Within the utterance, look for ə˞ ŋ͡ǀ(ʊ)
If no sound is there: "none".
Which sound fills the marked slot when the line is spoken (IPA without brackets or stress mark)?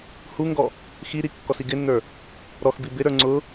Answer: ʊ